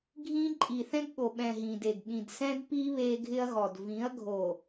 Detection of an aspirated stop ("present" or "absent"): absent